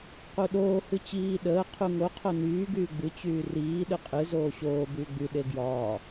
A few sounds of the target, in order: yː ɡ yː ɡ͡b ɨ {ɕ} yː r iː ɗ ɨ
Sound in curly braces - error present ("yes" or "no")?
yes